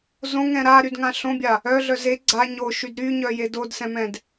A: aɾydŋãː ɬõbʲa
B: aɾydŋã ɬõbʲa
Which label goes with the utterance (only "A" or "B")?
B